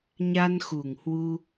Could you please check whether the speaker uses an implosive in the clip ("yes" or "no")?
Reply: no